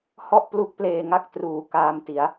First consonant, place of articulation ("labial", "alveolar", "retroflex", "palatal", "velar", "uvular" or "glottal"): glottal